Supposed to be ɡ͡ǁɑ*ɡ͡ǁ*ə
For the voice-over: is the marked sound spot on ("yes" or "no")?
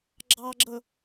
yes